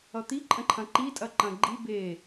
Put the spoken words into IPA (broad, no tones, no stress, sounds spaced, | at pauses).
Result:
ʌ t̪ i ǃʼ ə̃ ǃʰ ɐ̃ ǃ i tʼ ɐ ǃ ɐ̃ ɡ͡ǃ i b e